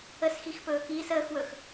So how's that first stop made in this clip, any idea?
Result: plain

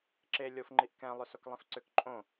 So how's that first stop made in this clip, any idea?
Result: click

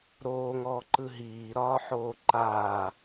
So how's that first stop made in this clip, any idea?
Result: click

